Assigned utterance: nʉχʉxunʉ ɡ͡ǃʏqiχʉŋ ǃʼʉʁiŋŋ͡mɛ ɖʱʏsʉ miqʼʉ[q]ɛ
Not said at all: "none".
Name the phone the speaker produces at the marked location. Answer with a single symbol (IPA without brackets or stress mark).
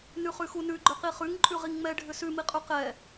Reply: q